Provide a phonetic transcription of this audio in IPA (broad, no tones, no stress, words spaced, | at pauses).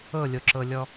ɤlʲoǁɤlʲɔ